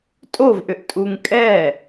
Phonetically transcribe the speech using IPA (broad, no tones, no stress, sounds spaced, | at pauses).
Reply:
tʼ o v ʔ ʏ ʔ tʼ u ŋ kʼ ɛ